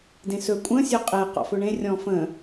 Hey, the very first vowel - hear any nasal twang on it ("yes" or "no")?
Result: yes